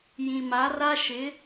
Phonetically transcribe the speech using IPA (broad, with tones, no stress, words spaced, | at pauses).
jĩ˨ma˨˦ra˦ʃɪ˨˦